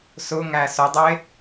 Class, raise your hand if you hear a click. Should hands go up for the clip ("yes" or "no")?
no